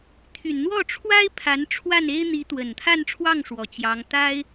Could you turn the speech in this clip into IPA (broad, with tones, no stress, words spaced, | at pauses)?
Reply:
t̪ʰy˨˩nn̪wɔ˥˩ʈ͡ʂʰwa˥ɪ̯ pʰa˧˥n ʈ͡ʂʰwa˥˩ne˥ɪ̯ n̪i˧˥t̪wə˨˩nt̪ʰa˥˧nʈ͡ʂʰwɑ˥˩ŋ ʂwɔ˨˩t͡ɕjɑ˧˥ŋ t̪a˥ɪ̯